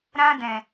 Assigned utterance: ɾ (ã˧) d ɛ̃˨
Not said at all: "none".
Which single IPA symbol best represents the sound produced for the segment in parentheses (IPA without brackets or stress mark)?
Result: ã˧